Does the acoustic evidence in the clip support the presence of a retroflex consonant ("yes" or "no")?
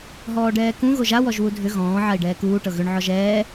yes